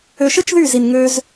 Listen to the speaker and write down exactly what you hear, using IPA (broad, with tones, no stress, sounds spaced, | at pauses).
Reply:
ø˧ ʃ ɯ˦ t͡ʃ ð y˦˨ z i˨ n ŋ ø˧ z